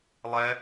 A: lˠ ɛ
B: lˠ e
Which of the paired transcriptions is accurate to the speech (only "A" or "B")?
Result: A